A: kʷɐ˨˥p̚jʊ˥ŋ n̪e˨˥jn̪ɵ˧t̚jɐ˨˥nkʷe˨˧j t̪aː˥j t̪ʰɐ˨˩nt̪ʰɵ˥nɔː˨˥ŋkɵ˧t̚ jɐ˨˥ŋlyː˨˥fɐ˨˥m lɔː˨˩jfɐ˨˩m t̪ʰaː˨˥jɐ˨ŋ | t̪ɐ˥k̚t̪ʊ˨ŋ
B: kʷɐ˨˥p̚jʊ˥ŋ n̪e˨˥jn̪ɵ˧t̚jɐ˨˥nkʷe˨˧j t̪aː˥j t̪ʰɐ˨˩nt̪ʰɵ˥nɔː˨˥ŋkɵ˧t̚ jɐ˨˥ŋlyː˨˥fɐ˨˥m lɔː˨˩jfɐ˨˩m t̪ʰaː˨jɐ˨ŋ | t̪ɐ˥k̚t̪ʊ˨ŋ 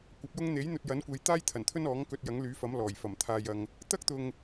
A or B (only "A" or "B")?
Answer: B